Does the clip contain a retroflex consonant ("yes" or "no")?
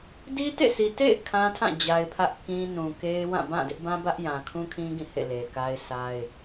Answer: no